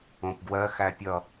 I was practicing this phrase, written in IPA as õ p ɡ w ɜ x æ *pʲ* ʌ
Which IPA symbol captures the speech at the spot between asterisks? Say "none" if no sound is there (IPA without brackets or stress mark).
pʲ